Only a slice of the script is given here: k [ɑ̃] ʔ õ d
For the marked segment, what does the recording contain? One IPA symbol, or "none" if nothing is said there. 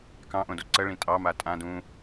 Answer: ɑ̃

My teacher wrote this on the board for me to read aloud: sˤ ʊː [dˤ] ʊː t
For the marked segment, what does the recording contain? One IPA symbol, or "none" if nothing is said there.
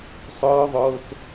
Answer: ðˤ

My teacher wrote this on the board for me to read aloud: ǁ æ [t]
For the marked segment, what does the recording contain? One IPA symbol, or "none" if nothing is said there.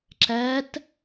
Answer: t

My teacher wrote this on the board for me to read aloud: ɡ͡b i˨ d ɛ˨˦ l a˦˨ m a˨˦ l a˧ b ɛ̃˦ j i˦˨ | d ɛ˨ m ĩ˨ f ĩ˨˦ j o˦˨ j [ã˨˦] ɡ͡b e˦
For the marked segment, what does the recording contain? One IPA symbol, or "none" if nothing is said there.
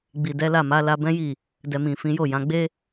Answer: ã˨˦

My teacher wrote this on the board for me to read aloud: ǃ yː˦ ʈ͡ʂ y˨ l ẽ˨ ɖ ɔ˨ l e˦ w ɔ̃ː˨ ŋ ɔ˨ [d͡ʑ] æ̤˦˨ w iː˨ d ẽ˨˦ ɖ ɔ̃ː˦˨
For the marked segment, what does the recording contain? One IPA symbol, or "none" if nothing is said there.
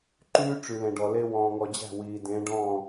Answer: d͡ʑ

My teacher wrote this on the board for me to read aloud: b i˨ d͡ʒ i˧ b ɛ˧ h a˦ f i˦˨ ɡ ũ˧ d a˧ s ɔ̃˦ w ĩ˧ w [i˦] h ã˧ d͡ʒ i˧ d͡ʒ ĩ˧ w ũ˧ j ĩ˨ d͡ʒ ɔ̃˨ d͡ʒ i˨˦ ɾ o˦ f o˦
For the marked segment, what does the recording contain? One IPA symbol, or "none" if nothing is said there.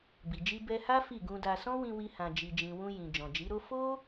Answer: i˦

